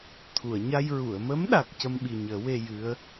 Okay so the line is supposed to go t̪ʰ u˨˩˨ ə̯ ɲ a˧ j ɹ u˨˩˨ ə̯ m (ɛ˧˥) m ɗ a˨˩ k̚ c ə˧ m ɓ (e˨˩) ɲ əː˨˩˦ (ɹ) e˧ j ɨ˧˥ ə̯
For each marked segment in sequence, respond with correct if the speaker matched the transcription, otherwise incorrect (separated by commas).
incorrect, incorrect, incorrect